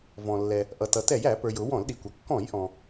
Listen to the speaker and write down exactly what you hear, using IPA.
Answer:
v ɔ̃˩ lː ɛ˩ | ʔ ʌ˩ t ʌ˩ t ɛ˧˩˧ j æ˧˩˧ p ə˞˩ j ʊ˧˩˧ w ɔ̃˧˩˧ l ɗ i˩ kʷ ʌ˩ kː ɔ̃˧˩˧ j ʔ ɔ̃˩

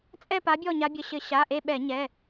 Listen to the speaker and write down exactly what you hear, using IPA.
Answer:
t͡sʼ ɛ˦˨ p a˨˦ bʲ ɔ˦˨ ɲ a˨˦ bʲ ə˩˧˩ ɕ ɘ˧˩˧ ɕ a˩˧˩ ʔ e˦˨ ɓ ɛ˧˩˧ ɲ ɛ˩˧˩

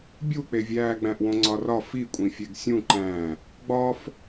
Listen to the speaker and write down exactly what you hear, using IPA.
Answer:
bʲ u k͡p e vʲ æː ɡ͡b æ̃ ʔ w õ ŋ͡ǀ ɒ r ɒ f i kʷʼ ĩ fʲ e ɡ sʲ ũ ǃ æ̃ | ɡ͡b ɒ f

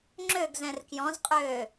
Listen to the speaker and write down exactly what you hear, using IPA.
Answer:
ŋ͡ǁ ø ɡ z ɛ̃ r k j ɔ̃ z qʼ øː

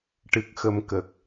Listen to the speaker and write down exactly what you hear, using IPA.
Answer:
ʈ ɨ˨˩ k̚ x ə˨˩ m k ə˨˩ k̚

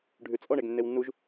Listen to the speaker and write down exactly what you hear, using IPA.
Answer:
ɖʱ ʉ t͡sʼ ɔ ɳ e ɡ nː e w nː u ʒ

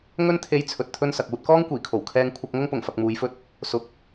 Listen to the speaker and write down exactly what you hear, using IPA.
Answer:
ŋ ɵ˥ n t̪ʰ e˧ j t͡sʰ ɵ˧ t̚ t̪ʰ ɵ˥ n s ɐ˨ k̚ uː˧ t̚ k ɔː˥ ŋ kʷ iː˨˩ kʰ o˨˩ w kʰ ɛː˧ ŋ kʷʰ ɐ˧ k̚ ŋ ʊ˥ ŋ p ʊ˨˩ ŋ f ɐ˧ k̚ m uː˨˧ j f ɵ˥ t̚ | s ʊ˨˥ k̚

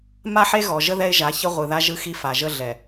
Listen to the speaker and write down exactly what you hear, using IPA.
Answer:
m a˦ ħ e˦ ɣ ɔ˨ ʒ ə˦ ð ɛ˦ ɪ̯ ʒ a˨˦ ç ə˦ ʁʷ ɯ˨ ð a˦ ʒ ɯ˦ x i˦ f a˨ ʒ ə˦ ɮ ɛ˨

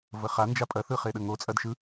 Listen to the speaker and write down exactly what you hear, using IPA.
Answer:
v ə χ a n d͡ʒ a pʼ ɐ θ ɯ χ e ɗ ə ŋ o t͡sʼ ɐ d ʃ ɯ

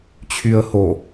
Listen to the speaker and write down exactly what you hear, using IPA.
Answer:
t͡ɕʰ y ə̯ h o

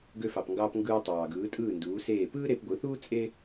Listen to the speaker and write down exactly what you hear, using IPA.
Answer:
ɡ ø˧ f ɑ˩ p ŋ ɡ ɑː˧ p ŋ ɡ ɯː˧ tˤ ɑː˩ ɡ ɯː˩˥ tʼ ɯː˥˩ n d uː˩˥ s eː˥˩ p ɯː˥ ɾ e˧ p ɡʷ ɯ˩˥ θ uː˥ t͡sʼ e˥

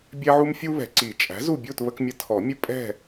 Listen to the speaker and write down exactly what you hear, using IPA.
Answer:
bʲ ɛ˦ ʕ u˦ m fʲ u˦ β ɛ̤˨ ǀ i˨˩˦ t͡ʃʼ æ̤˩˥ z u˦˨ bʲ u˦˨ t β ə˦ k mʲ ə˦ tʰ ɔ˨˩˦ mʲ ə˦ pʼ ɛ̤˦˨

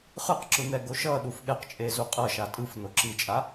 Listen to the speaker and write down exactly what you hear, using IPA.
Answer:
χ ɯ q ǁ ɯ n̪ ɛ ɡ o ʃ ʌ ɗ u f ɠ ɛ q t͡ʃʼ e z u qʼ ʌ ʃ a tʼ ɯ f n o ǁ i t͡ʃʼ a

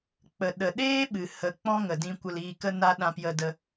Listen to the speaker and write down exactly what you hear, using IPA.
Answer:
k͡p ə˨ ɗ ə˨ ɗ eː˦ ɓ ɨ˨ h ə˨ k͡p ɔ̃˦ ŋ ə˨ d ĩ˧ kʷ ə˧ l iː˧ k ə˦ n a˦ ɗ ã˧ p j ə˧ d ə˧

